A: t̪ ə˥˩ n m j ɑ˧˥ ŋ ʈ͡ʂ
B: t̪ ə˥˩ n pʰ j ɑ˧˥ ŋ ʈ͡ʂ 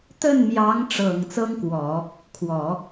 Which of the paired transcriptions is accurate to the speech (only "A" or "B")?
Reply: A